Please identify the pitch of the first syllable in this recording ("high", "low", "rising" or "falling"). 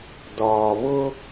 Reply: low